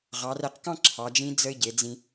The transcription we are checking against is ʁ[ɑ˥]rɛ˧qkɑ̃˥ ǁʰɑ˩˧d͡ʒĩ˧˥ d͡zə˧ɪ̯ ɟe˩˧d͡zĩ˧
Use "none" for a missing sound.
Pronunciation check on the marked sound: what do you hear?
ɑ˩˧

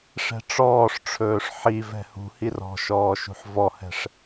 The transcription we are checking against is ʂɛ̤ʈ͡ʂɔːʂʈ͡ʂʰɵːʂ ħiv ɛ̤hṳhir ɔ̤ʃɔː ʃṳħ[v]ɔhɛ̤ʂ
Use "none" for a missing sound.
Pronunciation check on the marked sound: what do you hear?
v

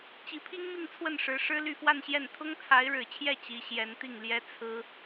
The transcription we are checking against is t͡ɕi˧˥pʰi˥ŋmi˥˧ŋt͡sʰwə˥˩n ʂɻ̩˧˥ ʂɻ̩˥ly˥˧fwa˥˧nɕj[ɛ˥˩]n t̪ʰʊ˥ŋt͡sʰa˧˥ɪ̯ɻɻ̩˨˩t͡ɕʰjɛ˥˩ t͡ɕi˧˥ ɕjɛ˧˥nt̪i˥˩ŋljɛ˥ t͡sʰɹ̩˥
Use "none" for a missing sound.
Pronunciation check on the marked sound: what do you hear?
ɛ˥˩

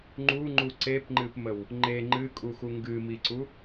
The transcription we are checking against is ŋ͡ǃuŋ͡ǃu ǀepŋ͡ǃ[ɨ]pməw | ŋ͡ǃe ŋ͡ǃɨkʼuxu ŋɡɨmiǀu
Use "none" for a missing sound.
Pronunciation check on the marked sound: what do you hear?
ɨ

